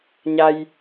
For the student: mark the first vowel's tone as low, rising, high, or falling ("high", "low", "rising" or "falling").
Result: low